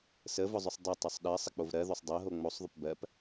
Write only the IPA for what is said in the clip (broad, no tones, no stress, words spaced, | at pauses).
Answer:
səvʊzˤʊsˤ dˤetˤosˤ ɗɜsˤək͡pov ɾɜðosˤ dˤɜɦo ŋ͡mosˤðˤʊp bɜp